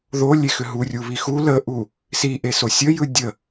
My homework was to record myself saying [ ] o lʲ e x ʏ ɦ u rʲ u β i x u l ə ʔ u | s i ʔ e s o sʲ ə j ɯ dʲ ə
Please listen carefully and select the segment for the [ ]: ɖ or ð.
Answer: ð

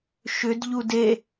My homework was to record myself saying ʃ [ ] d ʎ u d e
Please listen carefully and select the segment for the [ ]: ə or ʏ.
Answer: ʏ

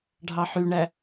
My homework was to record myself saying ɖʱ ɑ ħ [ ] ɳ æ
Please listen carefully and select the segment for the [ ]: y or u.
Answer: y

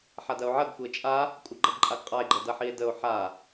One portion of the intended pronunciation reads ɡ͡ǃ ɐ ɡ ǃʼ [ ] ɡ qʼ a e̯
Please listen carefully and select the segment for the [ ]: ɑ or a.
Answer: a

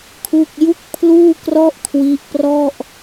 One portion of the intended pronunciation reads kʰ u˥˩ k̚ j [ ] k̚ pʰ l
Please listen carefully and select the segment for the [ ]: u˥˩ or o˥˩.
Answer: u˥˩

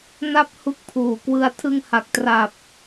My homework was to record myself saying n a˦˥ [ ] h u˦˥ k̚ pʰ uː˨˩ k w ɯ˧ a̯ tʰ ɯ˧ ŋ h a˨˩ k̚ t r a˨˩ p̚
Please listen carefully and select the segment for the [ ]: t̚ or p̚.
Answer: p̚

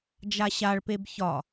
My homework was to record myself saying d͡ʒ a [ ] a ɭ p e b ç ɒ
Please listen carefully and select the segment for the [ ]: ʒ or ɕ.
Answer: ɕ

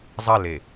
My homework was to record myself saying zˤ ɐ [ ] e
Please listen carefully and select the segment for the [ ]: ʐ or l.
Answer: l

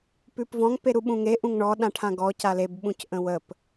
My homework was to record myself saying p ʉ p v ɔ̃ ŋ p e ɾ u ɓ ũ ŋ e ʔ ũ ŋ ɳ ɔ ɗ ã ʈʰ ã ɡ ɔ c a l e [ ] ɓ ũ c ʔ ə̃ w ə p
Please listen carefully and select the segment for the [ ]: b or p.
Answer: b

